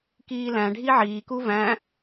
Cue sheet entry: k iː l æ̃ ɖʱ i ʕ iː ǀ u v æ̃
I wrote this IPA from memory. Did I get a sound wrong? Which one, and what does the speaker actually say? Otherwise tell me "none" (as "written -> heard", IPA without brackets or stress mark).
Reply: ǀ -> k